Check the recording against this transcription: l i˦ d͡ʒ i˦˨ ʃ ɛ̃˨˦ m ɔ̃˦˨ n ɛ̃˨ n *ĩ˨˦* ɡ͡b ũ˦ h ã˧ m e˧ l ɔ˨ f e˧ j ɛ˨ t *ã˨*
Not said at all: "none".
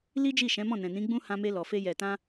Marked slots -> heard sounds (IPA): ĩ˨˦, ã˧

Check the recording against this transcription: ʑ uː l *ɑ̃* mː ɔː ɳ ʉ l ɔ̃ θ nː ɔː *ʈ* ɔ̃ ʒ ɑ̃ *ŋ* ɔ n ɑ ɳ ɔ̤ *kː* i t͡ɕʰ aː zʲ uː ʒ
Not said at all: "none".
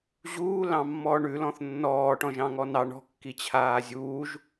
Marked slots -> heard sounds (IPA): ɑ̃, ʈ, ŋ, kː

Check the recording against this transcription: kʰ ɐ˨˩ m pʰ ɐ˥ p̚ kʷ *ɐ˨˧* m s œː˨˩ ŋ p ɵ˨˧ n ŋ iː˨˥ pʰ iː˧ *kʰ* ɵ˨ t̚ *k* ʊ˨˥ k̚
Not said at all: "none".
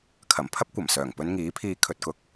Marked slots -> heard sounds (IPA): ɐ˨˩, kʰ, k

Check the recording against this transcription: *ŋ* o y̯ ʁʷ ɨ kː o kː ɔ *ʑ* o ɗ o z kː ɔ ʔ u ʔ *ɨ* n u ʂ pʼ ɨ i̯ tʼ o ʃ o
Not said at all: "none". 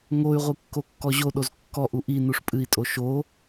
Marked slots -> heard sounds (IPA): ŋ, ʑ, i

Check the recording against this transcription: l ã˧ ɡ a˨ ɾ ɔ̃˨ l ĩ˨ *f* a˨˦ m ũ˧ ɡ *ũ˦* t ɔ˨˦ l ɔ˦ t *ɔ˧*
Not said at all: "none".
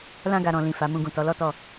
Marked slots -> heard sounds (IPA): f, ũ˨, ɔ˧

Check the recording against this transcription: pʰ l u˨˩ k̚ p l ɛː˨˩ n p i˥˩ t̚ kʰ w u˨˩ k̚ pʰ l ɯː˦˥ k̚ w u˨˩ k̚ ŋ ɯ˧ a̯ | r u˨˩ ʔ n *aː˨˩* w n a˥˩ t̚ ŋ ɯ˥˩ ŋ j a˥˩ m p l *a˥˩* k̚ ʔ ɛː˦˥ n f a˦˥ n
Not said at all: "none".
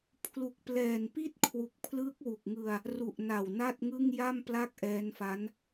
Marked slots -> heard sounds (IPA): a˨˩, a˥˩

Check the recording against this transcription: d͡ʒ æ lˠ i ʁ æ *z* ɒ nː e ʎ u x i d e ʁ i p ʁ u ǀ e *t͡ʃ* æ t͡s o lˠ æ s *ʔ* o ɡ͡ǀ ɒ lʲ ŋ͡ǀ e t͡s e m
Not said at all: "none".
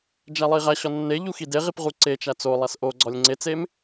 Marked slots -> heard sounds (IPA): ɕ, t͡ʃ, ʔ

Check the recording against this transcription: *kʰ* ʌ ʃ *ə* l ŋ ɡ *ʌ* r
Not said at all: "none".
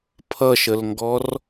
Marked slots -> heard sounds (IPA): pʰ, ə, ɔ

